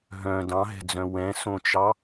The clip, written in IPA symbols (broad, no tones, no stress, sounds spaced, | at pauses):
ɦ œ̃ d ɑ̃ ɦ ɛ̤ d͡z œ̃ w ɛ̃ s õ t͡ʃ ɑ